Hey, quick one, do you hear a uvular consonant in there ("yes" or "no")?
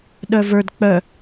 no